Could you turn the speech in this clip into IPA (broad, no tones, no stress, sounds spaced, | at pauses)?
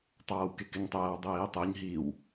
tˤ aː w k e k ɪ ɲ tˤ ɛː w dˤ iː tˤ i ɲ ɦ i w